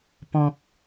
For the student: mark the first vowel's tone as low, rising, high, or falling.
low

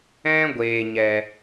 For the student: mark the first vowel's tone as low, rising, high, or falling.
high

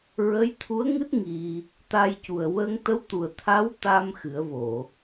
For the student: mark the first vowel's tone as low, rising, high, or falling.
rising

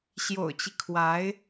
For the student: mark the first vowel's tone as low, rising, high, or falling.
low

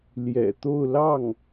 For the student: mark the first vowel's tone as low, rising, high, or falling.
low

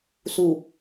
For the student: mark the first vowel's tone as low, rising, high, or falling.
low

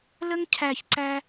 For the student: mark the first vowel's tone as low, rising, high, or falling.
high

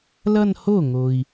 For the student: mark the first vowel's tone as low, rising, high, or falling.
falling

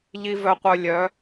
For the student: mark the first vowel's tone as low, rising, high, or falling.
low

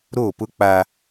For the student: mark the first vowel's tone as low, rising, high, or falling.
falling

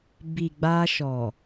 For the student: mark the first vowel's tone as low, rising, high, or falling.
low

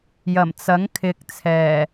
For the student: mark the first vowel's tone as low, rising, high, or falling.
low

